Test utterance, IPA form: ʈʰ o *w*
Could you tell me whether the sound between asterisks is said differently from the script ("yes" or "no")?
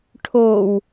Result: no